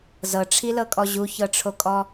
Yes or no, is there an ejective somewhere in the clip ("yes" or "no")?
yes